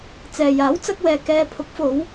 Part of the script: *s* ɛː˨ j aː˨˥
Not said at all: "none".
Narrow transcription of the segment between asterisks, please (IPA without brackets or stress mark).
t͡s